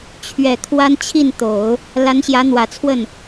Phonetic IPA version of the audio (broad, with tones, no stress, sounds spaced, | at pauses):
t͡ɕʰ ɥ ɛ˨˩ kʰ w a˥ n t͡ɕʰ i˥˩ n t̪ o˨˩˦ ʊ̯ | l a˧˥ n ɕ j ä˧˥ n̪ w ä˨˩ t͡sʰ w ə˥˩ n